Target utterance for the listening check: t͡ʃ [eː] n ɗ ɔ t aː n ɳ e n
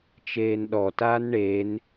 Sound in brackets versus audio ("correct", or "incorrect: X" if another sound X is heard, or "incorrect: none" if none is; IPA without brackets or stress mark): correct